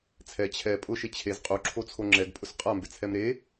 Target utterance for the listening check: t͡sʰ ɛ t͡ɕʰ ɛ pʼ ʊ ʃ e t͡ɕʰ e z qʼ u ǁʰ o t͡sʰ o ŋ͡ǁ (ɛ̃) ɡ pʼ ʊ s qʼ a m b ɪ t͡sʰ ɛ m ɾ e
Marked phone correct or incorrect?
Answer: incorrect